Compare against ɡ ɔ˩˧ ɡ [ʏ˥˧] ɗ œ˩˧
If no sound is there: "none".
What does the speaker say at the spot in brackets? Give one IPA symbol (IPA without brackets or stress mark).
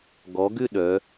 ʏ˥˧